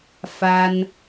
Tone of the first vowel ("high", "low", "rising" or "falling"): high